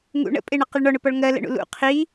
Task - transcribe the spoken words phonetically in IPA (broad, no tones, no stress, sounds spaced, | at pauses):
ŋ ṵ ɳ ə̰ pʼ ɪ ɳ ʌ q ɪ ɭ ɳ ɔ ɳ ʊ p ɔ ɭ ŋ ɜ l ə̰ ɳ ṵ l ṵ qʰ i